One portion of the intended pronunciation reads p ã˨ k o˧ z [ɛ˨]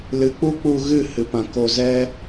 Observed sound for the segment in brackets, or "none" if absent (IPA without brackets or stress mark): ɛ˦